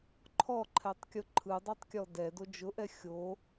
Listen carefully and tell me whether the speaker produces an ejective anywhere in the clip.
no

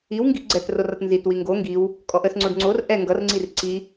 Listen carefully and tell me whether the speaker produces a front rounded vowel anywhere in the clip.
no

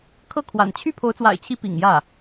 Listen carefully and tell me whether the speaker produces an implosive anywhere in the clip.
no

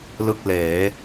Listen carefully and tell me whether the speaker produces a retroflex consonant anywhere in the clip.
no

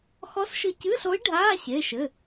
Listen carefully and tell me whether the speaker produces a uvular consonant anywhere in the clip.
no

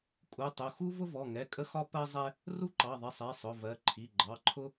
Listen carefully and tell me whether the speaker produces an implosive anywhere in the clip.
no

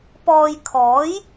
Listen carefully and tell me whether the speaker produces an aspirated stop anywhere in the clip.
yes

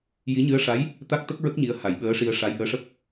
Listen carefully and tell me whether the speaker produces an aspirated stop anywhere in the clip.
no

